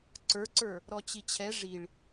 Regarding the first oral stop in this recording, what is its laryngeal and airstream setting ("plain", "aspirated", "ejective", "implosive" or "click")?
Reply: click